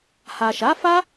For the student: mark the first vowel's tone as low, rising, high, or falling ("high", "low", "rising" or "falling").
low